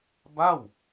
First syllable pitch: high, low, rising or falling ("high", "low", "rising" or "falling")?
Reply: falling